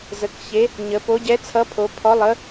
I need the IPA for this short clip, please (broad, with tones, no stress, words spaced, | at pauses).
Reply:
zə˩˧kçe˨˥ | ɲə˩˧ po˨˥ ɟɛ˨˥t͡sʰʌ˨˥pʰo˩˧ pʰɔ˨˥lˠə˨˥